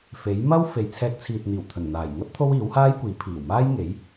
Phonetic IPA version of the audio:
fe˨˥jmɐ˥w fe˨j t͡sʰɛː˧k̚t͡sʰiː˨t̚n̪iː˨˩w t̪ʰɵ˨˩nn̪aː˨˩jŋɐ˥t̚ t̪ʰo˥wiː˨˥whaː˥jkʷiː˨˥ pʰiː˨˩wmaː˥jŋe˨˥j

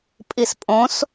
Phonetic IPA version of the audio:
pʼispʼõs

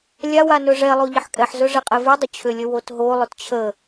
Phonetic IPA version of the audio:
lʲawa nɵʐɛlˠo ʎəħkʼɛħzɵ ʐɛqʼɛvʉdˤʏ t͡ɕʰʏlʲə wotɦolˠʏt t͡ɕʰə

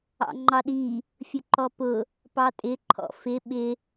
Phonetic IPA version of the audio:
ɑ̰ŋ͡ǃɑɗi | fʲʊǃɔpʊ | pɑtʼɪ ǃʰɔ̰fɪ ɓɪ

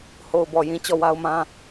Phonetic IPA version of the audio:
ho˨ʊ̯bɔ˨jĩ˨ t͡ɕɔ˦˨wa˦ʊ̯mã˦

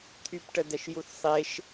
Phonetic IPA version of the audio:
t̪ʰypʈədɛʃ juθsˤeʃ

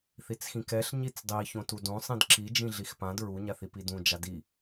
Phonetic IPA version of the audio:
θit͡sxĩkɛɬ ɲit͡sdˤi çõtudõ sˤĩdǁi d͡ʒĩɮixpãd ɹu ɲaθipidũ d͡ʒadi

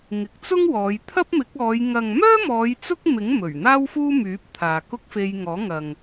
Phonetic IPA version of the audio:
ŋɪ˨k̚t͡sʊ˥ŋwɔː˨˧j t̪ʰɐ˥p̚mɪ˨˥k̚ɔː˨˧j ŋɐ˨ŋmœː˥mɔː˨˧j t͡sʊ˥k̚mɪ˨˥ŋ mɵ˨˩ɥn̪aː˥wfuː˥myː˨˥p̚ t̪ʰaː˨kʊ˥k̚ fe˧jŋɔː˨˥ŋɐ˨ŋ

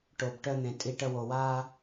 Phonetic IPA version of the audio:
ʈo˨b ʈœ˧n̪ẽ˨ tʼi˧ʈə˧ wo˨waː˧

